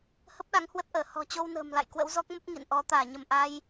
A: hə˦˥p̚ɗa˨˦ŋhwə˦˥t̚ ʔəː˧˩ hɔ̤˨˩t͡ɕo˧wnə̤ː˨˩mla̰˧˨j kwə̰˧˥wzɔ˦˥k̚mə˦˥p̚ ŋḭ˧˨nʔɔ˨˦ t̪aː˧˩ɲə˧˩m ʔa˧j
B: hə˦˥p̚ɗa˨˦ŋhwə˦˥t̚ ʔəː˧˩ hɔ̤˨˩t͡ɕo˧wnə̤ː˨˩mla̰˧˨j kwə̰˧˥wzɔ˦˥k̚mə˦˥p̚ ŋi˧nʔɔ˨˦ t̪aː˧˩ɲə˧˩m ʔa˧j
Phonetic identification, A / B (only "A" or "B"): A